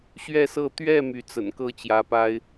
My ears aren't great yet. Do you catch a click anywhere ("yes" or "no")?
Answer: no